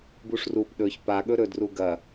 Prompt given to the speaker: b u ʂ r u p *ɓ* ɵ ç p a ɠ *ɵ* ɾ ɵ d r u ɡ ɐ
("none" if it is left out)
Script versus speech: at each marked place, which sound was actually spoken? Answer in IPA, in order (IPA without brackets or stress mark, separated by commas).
ɗ, ɵ